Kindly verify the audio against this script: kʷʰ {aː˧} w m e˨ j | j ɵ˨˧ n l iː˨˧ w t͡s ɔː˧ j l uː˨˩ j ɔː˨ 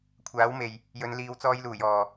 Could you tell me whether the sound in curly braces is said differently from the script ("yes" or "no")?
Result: yes